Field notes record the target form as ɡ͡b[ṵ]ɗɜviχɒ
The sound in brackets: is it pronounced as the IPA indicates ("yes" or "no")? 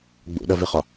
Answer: yes